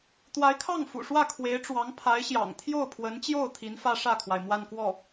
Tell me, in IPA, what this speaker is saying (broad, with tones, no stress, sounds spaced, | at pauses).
t̪ w a˧˥ ɪ̯ kʰ ɑ˥˩ ŋ f ṵ˨˩ ʂ w ä˥˩ kʰ w e˧˥ ɪ̯ ʈ͡ʂ w ɑ˧˥ ŋ pʰ a˧˥ ɪ̯ ɕ j ɑ̰˨˩ ŋ t̪ʰ j o˥˩ ʊ̯ pʰ w ə˧˥ n t͡ɕ j o˥˩ ʊ̯ t̪ʰ i˧˥ n f ä˥ ʂ ä˥˩ kʰ w a˩ ɪ̯ m w a˥˧ n k w ɔ˥˩